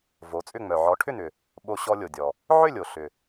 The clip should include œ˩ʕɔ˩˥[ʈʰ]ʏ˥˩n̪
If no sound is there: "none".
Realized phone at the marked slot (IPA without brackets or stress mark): ʈʰ